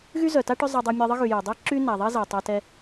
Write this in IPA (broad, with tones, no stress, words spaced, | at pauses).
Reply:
ɣy˥zœ˩ta˥ ʈœ˥zˤa˧dˤɛ˧ mʲə˧ðˤə˥ɣy˩ jə˩dˤi˥ǁy˥ na˩ðˤi˥ za˩tˤa˧tɛ˧